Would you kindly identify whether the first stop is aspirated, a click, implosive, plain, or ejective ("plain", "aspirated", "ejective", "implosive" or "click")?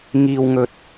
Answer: plain